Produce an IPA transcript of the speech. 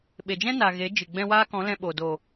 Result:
ɓe˨d͡ʒɛ̃˦na˨ ɣe˨˦d͡ʒɨ˨ ɡ͡bɛ̃˧ waː˦kɔ̃˨˦ lɛ̃˧ ɓo˨ do˨

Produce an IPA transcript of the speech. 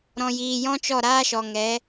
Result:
ɾɔ̃˨jiː˨jɔ̃˦ t͡ʃɔ˦˨ɾaː˦ʃɔ˨ŋɛ˨˦

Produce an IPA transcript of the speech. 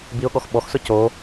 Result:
biʊ̯ɠɔx ɓɔxsʊ co

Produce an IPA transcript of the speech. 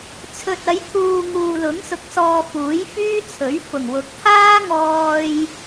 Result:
t͡sʰɵ˨t̚ɐ˨˧jt̪ʰuː˨ ŋuː˨lʊ˨˥ŋsʊ˨k̚sɔː˨ fuː˨˥jfyː˥t͡sʰɵ˨˥ɥ fʊ˨˩ŋwʊ˨˥k̚t̪ʰaː˥ ŋɔː˧j

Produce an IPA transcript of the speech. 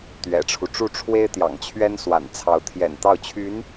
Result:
t̪ɥɛ̰˨˩ʈ͡ʂʰu˦ʈ͡ʂu˥˩ ʈ͡ʂʰwe˥ɪ̯t̪jɑ̰˨˩ŋt͡ɕʰɥɛ˥n swa̰˨˩nt͡sʰɑ˧˥ʊ̯ t̪ʰjɛ̰˨˩nt̪ɑ˥˩ʊ̯t͡ɕʰy˧˥n

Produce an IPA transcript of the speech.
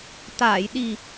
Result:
t̪aː˨˩˨j ɗi˨˩

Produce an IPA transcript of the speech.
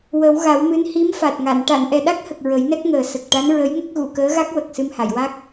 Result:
wə˨˩˦wɣa˨˩˦wmɨ˧˥n hi˧˥mfa˨˩t̚ŋa˨˩˨n ʈa˨˩˨nʔɛ˨˩ɗa˦˥k̚hə˨˩k̚ ɹə˨˩˦jnɛ˦˥k̚ŋəː˨˩ sə˨˩k̚ʈa˧˥n ɹə˧˥jŋə˦˥k̚ ɣu˨˩˨kəː˧˥ɣa˦˥k̚ wə˨˩k̚ sɨ˧mha˨˩˨jwa˦˥k̚

